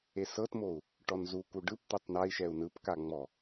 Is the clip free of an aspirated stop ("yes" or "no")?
yes